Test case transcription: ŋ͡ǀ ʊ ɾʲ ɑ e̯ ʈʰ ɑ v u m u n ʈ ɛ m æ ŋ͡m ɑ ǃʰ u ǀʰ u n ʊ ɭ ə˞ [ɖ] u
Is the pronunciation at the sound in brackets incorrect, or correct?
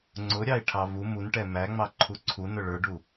correct